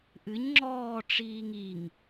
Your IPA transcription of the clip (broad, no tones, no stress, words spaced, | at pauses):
ʔɨɲ ŋ͡ǁɔː ʈ͡ʂiːŋiŋ